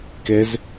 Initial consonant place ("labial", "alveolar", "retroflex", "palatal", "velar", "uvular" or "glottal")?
velar